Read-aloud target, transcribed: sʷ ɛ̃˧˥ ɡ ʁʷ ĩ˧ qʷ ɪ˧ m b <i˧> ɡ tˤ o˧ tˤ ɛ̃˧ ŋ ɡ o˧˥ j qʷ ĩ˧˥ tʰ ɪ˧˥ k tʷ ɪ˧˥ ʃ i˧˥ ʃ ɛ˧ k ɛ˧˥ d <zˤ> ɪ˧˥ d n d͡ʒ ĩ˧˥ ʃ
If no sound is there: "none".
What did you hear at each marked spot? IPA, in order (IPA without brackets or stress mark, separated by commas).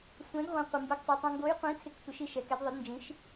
i˧˥, ðˤ